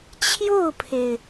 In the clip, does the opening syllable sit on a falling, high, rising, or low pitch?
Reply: falling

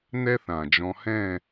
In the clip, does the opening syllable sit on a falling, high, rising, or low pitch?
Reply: high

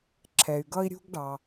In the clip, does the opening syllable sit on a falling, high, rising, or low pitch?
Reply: low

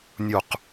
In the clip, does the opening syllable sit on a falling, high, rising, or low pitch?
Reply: falling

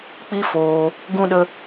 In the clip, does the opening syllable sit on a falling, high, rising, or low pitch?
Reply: high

